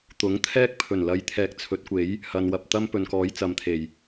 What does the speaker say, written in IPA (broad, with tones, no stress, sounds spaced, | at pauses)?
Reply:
t̪ ʊ˨˥ ŋ t̪ʰ ɛː˥ k̚ pʰ ɵ˨˩ n l ɐ˨˧ j t̪ʰ ɛː˨˥ k̚ t͡sʰ ɵ˨˥ t̚ kʷ e˨˥ j | h ɐ˨ n w ɐ˨ p̚ t̪ ɐ˥ m p ɵ˨ n k ɔː˨˥ j t͡s ɐ˨˧ m t̪ʰ e˨˩ j